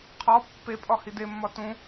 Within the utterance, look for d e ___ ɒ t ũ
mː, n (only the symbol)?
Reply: mː